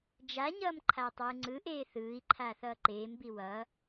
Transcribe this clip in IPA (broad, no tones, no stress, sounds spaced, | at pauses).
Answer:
d͡ʒ a ɲ ʌː m ǃʰ aː tˤ w ɯ ŋ͡ǀ ɯ ʔ eː θ ɯː i̯ ǃʰ aː θ ʌː ǃ eː m b i w ʌ